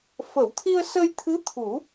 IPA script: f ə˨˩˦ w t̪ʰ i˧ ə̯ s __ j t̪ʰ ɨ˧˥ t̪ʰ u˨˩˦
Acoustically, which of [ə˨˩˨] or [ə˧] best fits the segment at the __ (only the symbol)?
ə˧